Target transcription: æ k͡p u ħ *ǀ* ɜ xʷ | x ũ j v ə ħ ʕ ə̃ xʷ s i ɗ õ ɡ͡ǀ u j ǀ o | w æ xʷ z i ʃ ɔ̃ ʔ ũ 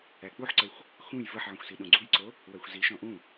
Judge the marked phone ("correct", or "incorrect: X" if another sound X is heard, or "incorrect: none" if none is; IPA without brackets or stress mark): correct